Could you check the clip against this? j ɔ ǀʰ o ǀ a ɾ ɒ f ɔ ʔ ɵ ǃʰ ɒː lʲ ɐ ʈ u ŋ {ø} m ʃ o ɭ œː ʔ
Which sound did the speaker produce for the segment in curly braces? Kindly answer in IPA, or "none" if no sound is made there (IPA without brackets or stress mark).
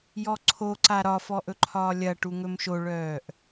ɵ